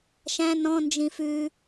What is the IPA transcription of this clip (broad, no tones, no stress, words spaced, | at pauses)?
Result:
ʃæ̃ nɔ̃nd͡ʒĩ fʉ